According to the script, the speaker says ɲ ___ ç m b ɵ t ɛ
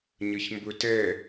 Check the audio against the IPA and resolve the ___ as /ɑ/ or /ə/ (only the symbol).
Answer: ə